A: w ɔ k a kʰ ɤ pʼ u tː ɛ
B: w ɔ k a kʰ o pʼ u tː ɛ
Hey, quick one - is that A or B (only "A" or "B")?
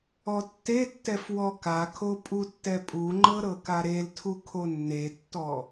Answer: B